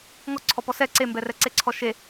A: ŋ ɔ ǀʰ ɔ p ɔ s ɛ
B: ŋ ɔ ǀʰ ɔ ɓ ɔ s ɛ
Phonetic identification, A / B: A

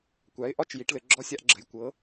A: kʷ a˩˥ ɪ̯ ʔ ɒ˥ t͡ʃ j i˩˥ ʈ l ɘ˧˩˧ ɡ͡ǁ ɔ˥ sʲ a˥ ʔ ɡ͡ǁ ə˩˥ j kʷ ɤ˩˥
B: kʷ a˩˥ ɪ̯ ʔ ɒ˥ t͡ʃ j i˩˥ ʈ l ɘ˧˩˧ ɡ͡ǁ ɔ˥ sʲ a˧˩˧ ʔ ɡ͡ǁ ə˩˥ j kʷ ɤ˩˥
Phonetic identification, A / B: A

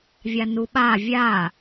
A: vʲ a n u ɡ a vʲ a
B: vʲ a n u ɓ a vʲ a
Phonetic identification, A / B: B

